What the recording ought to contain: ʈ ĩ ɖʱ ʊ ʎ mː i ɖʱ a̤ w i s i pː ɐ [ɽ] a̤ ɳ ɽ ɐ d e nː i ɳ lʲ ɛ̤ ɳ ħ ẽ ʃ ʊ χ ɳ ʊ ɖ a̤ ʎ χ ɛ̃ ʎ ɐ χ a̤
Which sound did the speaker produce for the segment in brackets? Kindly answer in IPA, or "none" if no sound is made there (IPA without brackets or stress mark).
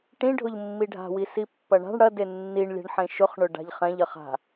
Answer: ɳ